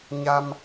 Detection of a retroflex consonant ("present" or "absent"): absent